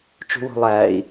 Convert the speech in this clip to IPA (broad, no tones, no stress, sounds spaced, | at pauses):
t͡ʃ ṳ w o̤ lˠ æː i̯